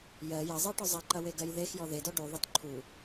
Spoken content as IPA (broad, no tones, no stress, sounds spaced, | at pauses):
j ɜ j ɐ zˤ ɜ ʈ ɔ zˤ ɐ ǃ ɐ w e ɡ ɜ j ð e x j ɔ ð e d ɔ ɖ u ðˤ ɐ t ǃʰ u